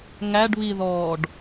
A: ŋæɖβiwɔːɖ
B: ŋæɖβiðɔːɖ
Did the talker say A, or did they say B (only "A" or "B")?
B